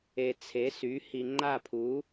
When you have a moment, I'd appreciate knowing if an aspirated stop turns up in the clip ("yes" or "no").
yes